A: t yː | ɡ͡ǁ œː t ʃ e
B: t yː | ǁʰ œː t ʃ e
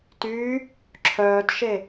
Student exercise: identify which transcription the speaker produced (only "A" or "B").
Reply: B